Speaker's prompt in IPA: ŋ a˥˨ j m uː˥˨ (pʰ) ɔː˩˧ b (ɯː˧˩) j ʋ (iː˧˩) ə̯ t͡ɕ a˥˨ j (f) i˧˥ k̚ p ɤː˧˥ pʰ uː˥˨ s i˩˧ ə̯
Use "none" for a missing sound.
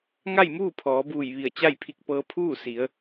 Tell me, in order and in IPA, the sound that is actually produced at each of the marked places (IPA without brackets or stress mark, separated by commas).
pʰ, uː˧˩, i˧˩, pʰ